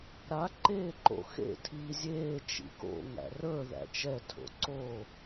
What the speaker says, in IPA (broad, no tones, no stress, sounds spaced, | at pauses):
ɾ a ǃ eː ǃ o̰ x ḛ tʰ iː zʲ eː t͡ʃ ḭ k o̰ ŋ æ̰ r ə˞ ð æ̰ t͡ʃ ɛ tʰ o̰ ǀ o